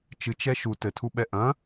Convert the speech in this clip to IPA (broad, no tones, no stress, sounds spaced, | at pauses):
t͡ʃ ɨ t͡ʃ ɛ ʃ u t ɘ tʰ u ɓ ɛ ʔ ɐ̃